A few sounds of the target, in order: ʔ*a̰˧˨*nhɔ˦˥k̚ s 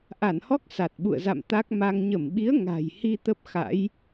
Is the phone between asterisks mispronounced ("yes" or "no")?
yes